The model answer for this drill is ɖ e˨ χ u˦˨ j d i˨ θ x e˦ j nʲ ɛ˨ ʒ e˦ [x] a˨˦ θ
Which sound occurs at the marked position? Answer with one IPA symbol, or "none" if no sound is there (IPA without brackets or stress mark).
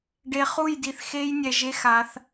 x